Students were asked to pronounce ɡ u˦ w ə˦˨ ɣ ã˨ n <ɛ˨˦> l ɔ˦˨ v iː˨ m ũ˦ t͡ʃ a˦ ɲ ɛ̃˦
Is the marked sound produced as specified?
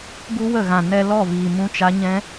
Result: no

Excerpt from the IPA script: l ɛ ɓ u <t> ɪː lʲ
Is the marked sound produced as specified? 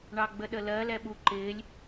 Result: no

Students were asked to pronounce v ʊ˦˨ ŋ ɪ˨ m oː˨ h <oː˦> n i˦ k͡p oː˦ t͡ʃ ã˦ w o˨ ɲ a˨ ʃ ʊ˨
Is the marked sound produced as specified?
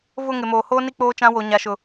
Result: yes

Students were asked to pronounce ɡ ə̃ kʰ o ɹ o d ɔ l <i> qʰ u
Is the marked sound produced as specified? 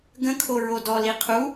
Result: yes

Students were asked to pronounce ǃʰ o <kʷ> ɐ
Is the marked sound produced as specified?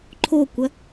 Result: yes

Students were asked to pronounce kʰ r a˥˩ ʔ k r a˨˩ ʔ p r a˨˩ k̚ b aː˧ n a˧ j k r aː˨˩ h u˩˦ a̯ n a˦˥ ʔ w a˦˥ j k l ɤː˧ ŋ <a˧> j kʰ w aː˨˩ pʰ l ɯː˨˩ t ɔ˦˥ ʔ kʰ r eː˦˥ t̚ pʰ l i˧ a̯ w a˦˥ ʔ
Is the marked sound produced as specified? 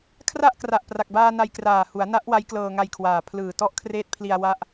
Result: yes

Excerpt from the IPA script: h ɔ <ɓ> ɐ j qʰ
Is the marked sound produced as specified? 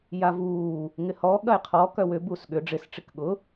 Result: no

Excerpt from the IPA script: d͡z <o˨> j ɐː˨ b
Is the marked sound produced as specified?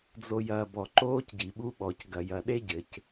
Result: yes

